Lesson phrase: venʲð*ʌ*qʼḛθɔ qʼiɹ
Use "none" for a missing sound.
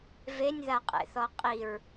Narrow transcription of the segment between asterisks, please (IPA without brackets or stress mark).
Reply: a